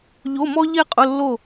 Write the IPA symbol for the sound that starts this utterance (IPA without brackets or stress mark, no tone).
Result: ʎ